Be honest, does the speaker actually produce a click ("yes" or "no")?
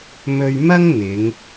no